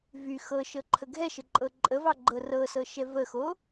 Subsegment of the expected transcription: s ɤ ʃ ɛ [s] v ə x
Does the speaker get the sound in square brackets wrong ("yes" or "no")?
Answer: yes